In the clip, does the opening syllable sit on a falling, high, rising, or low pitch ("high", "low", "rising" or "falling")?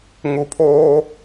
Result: low